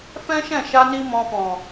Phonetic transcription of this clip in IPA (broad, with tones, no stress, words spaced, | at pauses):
fɛ̃˦ʃɛ̃˦˨ʃa˧ni˧ mɔ̃˧fɔ̃˨